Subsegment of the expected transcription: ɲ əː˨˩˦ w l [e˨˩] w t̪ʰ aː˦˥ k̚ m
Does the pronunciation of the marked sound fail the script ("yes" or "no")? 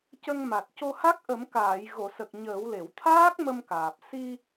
yes